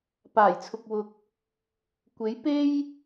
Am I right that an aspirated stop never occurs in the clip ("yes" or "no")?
no